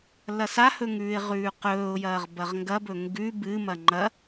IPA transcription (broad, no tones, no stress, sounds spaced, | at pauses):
l ɐ s a h ɵ ŋ ʉː ɪ̯ ʁ ʉː q ɵː ʊ̯ j ɐː ʁ b ɐ ʁ ŋ ɡ ɐ b ɵ ŋ ɡ ʉ b ɨ m ɐ ŋ͡ǃ ɐ